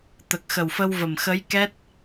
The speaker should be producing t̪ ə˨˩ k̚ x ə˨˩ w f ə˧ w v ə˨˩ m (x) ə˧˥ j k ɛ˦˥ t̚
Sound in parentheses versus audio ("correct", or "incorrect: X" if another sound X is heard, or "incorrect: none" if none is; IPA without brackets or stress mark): correct